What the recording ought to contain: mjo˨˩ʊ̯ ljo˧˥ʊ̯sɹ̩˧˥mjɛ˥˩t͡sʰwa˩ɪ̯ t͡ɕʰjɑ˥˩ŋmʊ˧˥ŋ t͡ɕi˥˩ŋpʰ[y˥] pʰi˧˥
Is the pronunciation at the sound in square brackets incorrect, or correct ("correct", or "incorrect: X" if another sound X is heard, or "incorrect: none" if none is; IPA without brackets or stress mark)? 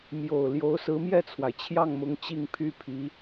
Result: correct